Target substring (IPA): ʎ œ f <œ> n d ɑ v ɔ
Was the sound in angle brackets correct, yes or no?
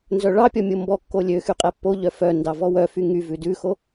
yes